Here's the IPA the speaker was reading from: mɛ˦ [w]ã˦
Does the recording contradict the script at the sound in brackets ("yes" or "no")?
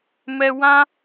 no